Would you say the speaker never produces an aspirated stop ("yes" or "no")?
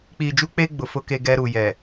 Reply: yes